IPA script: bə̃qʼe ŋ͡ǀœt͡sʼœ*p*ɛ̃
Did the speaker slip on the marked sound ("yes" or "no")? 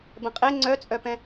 no